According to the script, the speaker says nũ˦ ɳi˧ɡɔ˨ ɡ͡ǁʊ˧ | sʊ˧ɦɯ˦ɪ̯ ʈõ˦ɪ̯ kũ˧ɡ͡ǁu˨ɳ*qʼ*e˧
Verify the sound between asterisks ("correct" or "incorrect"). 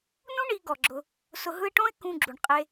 correct